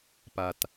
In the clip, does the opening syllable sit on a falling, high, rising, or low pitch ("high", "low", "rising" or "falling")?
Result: low